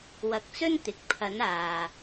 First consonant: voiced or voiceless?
voiced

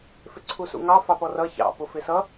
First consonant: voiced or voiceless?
voiceless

